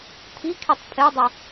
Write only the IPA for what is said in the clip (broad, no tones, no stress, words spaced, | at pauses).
t̪ʰikʰitˤ pʰedˤu